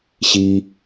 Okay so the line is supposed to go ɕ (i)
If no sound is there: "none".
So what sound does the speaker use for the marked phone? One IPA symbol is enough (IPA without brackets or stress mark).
i